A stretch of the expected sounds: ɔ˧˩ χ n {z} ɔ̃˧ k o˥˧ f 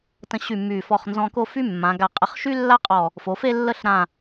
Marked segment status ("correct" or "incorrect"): correct